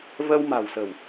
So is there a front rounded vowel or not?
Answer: no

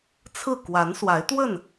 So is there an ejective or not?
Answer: no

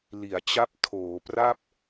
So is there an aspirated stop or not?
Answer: yes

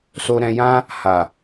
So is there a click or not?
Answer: no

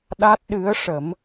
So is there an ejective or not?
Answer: no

